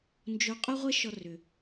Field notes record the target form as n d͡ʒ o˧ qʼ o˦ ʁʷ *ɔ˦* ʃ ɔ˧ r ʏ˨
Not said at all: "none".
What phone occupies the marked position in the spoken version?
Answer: ə˦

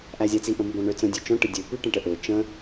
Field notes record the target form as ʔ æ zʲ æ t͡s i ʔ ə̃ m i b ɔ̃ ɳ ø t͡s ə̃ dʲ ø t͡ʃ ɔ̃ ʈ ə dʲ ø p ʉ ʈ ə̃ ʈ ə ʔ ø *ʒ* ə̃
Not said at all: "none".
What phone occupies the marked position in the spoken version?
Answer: t͡ʃ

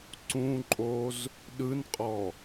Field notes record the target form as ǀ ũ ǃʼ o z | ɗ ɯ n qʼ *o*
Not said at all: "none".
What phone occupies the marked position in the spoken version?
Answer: ɔ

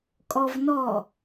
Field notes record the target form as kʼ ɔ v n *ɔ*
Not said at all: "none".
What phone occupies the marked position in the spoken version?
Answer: ɔ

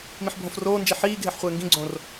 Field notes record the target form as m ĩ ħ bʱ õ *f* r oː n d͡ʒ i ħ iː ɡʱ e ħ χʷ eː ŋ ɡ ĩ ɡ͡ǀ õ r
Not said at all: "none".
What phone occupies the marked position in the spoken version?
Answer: f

